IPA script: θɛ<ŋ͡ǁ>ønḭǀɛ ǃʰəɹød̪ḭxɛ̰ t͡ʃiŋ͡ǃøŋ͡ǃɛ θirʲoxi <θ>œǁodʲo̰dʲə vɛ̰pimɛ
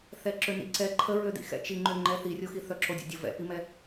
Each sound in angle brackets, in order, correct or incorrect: incorrect, correct

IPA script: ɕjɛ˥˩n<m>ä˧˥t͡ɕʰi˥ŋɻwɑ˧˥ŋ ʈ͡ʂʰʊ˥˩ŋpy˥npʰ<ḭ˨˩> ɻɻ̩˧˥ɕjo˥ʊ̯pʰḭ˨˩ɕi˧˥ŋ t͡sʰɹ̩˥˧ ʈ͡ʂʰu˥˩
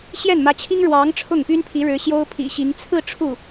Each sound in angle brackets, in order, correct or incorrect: correct, incorrect

